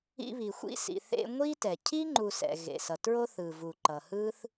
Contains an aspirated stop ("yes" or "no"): yes